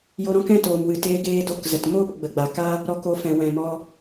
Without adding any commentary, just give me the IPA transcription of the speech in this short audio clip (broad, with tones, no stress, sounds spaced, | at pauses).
j o˧ ɾ ɔ̃˦ k ɛ̃˦ t oː˨ m w ɨ˨ t eː˧ ɡ eː˧ d o˧ k z ə˨ t m oː˦ p ɡ͡b ə˨ ɡ͡b a˨ k a˦ | ɾ ɔ˧ k o˧ f ɛ̃˨ w ɛ̃˨ m ɔ˧